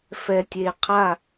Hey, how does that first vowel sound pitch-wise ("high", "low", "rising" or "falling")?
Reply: low